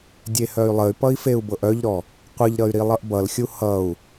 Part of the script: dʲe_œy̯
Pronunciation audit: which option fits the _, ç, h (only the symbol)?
h